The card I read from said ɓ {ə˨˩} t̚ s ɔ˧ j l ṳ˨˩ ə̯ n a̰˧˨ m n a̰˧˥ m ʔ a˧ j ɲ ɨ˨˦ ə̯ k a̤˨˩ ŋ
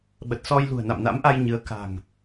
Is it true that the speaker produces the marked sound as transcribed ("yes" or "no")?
yes